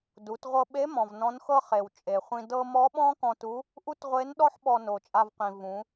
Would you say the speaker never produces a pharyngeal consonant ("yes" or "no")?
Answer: no